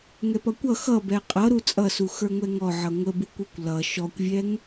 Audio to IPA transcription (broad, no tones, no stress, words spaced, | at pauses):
ŋɛpʌkʷʌ xʌ bɛqʼʌ ɾut͡sʼʌsu xə˞ŋʷɛŋɔʕʌ ŋʷəbukʷukʷ lʌ ʃɔkʷvʲɛŋ